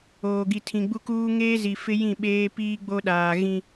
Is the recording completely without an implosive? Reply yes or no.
no